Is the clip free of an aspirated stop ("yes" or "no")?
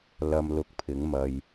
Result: no